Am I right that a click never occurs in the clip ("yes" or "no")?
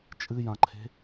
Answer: no